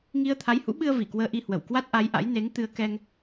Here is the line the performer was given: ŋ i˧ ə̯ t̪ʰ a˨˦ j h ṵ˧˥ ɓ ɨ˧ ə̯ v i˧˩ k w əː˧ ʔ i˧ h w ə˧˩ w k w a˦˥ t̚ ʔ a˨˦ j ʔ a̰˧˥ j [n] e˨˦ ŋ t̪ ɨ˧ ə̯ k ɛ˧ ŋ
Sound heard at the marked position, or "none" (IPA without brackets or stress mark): n